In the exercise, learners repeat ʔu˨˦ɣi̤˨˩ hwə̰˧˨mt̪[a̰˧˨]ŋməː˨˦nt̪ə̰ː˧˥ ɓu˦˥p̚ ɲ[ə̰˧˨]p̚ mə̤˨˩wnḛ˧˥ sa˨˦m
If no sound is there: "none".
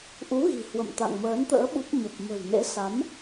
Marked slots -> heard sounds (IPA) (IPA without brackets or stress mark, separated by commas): a̰˧˨, ə˨˩